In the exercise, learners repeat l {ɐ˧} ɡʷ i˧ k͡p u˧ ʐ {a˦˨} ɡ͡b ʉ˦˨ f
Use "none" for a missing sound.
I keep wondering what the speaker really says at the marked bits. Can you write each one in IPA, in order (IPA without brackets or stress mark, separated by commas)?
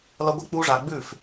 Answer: ɐ˧, a˨